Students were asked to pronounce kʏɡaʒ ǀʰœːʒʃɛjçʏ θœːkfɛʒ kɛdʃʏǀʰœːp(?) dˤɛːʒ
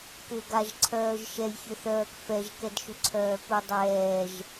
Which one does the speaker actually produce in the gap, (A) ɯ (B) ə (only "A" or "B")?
A